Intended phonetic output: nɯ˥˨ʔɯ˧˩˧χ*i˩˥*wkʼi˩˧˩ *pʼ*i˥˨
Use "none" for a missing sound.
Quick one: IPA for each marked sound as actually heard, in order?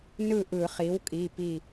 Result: i˩˥, p

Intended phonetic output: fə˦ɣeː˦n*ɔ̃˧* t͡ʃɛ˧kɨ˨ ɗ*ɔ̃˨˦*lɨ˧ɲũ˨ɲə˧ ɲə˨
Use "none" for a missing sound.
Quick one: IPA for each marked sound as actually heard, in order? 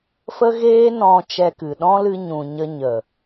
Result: ɔ̃˧, ɔ̃˦

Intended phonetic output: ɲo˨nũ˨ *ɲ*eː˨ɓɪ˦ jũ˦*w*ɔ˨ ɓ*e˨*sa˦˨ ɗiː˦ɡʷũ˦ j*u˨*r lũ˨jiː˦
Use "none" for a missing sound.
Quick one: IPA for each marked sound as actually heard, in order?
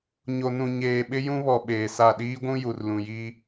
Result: ɲ, β, eː˨, u˨

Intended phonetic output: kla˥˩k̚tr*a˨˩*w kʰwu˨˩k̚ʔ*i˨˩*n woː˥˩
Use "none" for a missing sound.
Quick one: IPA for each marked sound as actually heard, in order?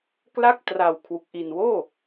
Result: a˨˩, i˨˩

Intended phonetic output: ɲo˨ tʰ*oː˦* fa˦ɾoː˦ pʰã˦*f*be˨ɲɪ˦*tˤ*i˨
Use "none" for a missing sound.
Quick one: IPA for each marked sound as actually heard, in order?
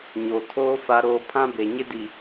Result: oː˦, none, d

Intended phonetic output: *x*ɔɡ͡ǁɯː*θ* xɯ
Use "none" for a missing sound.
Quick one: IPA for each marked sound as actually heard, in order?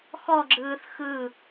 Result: x, θ

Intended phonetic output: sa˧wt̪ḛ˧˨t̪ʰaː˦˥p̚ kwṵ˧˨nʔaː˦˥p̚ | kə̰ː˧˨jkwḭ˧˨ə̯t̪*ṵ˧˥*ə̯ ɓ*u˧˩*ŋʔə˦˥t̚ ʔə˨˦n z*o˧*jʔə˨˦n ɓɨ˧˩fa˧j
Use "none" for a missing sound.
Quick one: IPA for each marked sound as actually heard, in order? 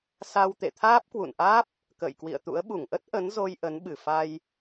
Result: ṵ˧˥, u˧˩, o˧

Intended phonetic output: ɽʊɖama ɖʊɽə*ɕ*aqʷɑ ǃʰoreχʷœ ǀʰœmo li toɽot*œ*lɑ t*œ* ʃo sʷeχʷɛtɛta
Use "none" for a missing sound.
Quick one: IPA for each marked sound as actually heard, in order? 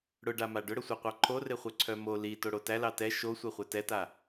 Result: sʷ, æ, ɛ

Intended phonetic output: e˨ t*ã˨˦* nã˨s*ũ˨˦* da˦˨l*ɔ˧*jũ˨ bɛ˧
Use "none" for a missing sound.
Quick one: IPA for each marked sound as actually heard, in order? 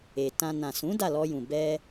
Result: ã˧, ũ˨˦, ɔ˧

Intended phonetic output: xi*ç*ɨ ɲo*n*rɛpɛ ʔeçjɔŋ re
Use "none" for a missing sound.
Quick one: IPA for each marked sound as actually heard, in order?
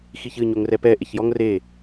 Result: ç, ŋ

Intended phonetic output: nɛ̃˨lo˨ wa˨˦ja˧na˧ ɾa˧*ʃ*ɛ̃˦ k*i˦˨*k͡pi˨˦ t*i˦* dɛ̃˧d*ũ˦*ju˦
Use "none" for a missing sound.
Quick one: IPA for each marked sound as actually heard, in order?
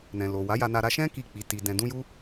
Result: ʃ, i˦˨, i˧, ũ˦

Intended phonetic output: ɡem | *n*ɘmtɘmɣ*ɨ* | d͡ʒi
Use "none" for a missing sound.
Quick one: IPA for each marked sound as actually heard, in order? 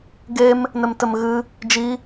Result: n, ɨ

